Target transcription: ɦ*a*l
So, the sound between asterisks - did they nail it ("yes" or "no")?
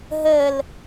no